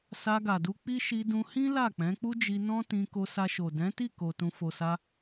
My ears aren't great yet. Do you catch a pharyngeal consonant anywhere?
no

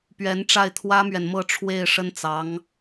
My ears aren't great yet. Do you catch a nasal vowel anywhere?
no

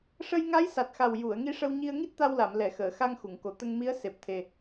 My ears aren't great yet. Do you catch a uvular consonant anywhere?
no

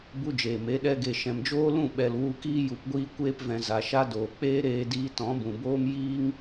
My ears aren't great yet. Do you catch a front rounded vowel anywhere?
no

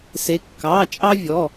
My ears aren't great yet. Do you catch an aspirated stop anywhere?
no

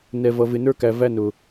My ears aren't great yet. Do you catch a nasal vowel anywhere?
no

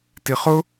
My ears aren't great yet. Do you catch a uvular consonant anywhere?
yes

